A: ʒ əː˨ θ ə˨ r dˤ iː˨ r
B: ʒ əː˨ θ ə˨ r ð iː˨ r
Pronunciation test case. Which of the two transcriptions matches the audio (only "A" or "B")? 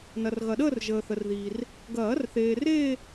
B